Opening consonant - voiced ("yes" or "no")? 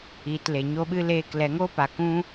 no